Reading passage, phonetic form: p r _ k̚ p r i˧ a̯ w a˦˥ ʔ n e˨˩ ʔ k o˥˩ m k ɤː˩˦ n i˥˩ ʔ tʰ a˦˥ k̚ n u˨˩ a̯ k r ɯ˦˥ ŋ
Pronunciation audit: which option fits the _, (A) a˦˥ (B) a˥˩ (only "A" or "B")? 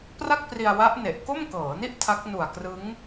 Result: B